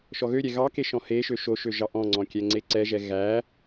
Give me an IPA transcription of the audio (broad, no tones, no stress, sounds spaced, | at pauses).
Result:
ʃ ɔ ɣ ø ɾʲ ɛ ɣ ɑ k e ʃ ɔ̃ h e ʃ ø ʃ o ʃ ø ʒ ɑ ʔ ɔ̃ ŋ͡ǀ ɔ̃ kʲ ɛ ŋ͡ǀ e ǀ ɛ ʒ ɛ ɣ æ